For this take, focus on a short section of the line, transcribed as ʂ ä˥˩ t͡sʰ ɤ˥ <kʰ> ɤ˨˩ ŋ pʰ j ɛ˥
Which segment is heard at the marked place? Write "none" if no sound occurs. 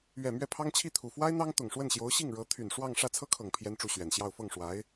kʰ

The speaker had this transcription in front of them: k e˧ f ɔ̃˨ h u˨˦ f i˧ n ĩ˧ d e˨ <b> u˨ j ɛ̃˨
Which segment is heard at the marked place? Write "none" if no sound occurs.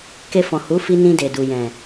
d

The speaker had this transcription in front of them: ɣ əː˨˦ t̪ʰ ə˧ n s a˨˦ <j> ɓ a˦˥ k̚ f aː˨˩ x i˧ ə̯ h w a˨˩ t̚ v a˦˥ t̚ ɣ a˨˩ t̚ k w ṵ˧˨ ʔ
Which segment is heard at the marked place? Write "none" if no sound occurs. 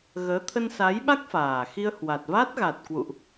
j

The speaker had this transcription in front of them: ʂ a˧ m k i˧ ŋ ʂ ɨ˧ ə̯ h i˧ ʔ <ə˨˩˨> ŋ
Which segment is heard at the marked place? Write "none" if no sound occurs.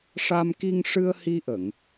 ə˨˩˨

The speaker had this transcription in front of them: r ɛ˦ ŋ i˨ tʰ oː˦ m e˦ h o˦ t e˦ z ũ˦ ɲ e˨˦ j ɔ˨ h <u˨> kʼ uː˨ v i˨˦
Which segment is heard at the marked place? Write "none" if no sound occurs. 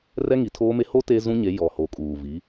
o˨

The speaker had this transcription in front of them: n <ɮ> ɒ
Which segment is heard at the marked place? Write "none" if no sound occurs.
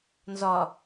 z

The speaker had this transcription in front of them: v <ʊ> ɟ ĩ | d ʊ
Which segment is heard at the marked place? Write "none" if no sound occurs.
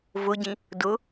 ʊ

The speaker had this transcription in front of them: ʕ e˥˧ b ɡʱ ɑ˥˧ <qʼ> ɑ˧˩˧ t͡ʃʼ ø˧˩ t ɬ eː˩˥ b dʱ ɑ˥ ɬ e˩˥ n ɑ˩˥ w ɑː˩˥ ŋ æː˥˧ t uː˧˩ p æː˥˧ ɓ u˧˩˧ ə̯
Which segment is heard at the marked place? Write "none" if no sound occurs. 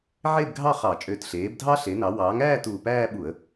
χ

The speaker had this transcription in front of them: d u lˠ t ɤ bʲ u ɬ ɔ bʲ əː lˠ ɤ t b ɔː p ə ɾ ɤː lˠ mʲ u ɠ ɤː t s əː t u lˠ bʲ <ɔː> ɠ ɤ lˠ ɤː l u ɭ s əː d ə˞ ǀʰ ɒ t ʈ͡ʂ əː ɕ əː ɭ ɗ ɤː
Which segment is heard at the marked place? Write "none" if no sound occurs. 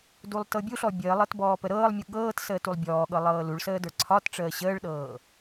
ɔː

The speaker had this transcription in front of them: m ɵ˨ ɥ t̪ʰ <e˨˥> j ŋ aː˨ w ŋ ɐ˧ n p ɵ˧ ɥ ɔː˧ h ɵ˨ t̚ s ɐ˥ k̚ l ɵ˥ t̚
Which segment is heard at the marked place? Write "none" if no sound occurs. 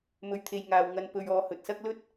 e˨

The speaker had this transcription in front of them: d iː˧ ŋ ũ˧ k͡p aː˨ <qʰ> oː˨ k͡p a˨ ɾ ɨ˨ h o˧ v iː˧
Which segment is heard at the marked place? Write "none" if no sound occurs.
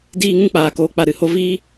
k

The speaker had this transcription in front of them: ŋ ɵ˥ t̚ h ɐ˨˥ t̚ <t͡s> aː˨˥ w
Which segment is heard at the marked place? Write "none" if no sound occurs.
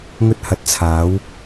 t͡sʰ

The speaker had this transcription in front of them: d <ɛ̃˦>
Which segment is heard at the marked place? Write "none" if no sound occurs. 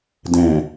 ɛ̃˨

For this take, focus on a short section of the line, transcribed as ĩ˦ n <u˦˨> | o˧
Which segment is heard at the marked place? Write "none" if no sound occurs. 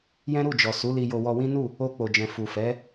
u˦˨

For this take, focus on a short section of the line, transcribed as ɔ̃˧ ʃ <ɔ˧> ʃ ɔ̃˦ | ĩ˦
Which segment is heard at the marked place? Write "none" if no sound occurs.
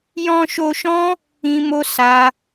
o˧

